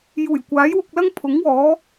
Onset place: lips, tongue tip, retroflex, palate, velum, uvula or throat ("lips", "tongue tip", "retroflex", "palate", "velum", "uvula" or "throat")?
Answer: palate